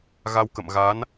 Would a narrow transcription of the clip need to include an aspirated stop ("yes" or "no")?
no